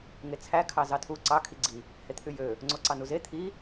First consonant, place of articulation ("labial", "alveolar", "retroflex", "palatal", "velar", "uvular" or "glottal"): velar